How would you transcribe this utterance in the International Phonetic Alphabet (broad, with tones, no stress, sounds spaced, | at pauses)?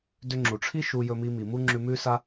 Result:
d ʏ˧ ŋ͡ǁ u˨ ʈ͡ʂʰ i˦ ʃ u˧ j ɵ˧ m i˧ m i˨ m u˦ ŋ͡ǁ ʉ˧ m ʉ˦ s a˦